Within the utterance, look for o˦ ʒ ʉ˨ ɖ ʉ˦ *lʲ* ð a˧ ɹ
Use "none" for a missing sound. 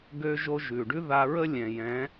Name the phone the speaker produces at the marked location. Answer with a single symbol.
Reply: none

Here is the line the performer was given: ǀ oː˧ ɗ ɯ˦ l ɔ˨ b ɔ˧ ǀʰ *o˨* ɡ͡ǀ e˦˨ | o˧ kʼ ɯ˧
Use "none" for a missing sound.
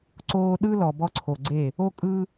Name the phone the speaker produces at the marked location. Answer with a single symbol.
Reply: o˨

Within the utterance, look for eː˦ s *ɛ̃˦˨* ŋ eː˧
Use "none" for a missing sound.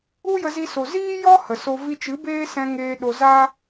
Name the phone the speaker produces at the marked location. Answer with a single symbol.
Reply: ɛ̃˧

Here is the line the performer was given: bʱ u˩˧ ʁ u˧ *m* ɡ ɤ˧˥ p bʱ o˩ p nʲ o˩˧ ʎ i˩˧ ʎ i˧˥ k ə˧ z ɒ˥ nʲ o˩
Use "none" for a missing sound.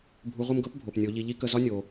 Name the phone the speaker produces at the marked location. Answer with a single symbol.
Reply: m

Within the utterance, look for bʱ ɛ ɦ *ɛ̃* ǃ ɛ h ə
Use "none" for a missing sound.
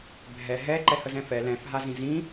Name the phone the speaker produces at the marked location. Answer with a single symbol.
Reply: ɛ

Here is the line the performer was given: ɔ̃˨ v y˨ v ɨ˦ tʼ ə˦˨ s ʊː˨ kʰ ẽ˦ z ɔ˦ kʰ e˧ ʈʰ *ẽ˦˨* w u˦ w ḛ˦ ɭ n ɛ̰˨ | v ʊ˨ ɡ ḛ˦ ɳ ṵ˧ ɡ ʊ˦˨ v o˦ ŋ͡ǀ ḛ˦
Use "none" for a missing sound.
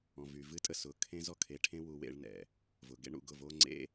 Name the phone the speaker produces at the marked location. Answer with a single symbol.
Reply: ẽ˦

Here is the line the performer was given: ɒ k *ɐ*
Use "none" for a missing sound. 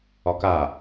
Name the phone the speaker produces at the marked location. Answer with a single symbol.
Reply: a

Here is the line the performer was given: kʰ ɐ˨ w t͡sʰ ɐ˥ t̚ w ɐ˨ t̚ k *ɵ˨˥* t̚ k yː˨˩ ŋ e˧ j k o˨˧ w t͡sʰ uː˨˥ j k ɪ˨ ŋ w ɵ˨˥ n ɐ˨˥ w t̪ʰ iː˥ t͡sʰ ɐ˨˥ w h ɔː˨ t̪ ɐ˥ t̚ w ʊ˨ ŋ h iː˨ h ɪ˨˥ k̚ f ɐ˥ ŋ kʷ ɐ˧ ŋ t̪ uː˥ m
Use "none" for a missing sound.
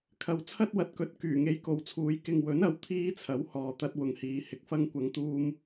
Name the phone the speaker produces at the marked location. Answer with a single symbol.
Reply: ɵ˨˥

